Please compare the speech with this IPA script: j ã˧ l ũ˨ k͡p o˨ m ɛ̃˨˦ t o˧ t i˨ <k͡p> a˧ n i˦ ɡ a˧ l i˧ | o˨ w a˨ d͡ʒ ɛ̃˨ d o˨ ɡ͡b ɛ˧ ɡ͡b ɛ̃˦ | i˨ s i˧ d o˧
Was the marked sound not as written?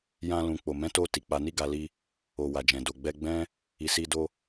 no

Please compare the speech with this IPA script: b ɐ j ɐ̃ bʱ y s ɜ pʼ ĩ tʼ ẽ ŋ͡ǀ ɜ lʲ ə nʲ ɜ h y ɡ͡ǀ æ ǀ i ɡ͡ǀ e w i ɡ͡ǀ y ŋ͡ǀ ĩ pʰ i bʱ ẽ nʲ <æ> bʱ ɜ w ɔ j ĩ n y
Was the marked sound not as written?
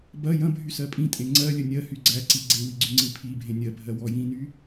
yes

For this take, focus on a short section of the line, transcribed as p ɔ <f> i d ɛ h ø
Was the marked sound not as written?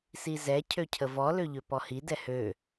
yes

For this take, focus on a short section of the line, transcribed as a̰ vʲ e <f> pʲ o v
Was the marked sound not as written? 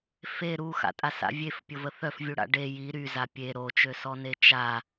no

